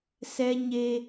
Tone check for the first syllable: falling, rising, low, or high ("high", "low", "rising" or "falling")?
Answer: high